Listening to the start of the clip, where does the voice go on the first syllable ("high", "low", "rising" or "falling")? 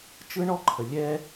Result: high